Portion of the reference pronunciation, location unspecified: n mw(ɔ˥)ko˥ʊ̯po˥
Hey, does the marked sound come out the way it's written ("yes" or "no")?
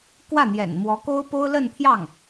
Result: no